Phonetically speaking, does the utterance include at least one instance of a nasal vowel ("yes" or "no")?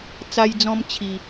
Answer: yes